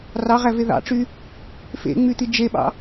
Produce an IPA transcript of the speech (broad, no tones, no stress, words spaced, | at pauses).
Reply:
rɑʁæve ðɑ̰ʈ͡ʂy | fḛŋ͡myt̪i d͡ʒeɓɑ̰